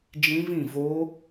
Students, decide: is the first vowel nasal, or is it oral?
nasal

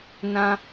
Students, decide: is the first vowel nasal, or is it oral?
nasal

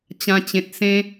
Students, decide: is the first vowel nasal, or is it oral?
nasal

